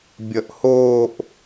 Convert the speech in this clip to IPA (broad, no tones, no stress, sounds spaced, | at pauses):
bʲ ʌ ʔ h oː ʔ